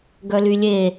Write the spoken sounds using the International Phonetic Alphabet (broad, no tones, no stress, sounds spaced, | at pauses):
ɡ œ l y lʲ e